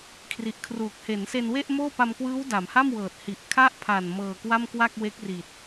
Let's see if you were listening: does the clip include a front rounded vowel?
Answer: no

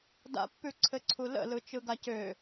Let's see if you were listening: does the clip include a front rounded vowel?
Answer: yes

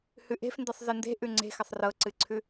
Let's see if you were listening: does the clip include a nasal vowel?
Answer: no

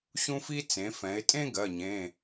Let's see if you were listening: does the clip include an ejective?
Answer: yes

